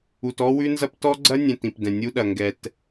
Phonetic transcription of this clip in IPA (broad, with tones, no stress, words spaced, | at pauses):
u˨t ɔ˦wʉ˦nzɐ˦p tɔ˦ɡ͡ǀɐ˦nʲɛ̃˨t ĩ˨pdɛ̃˨nʲu˦ɗɐ˨ ŋɡɛ˨t